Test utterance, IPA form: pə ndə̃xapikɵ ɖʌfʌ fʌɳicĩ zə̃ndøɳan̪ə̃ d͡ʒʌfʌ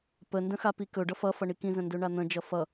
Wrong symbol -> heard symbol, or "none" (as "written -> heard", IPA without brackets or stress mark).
c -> k